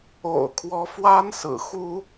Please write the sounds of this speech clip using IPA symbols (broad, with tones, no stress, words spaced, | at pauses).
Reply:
o̰˨˩ʊ̯kʰwɔ˧˥fwa˥n sɹ̩˨˩xu˥